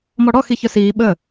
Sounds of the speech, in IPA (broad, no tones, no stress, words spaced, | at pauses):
mɔɽɔ xiçœsiː ɓə